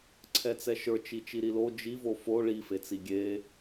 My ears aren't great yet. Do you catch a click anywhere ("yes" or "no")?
yes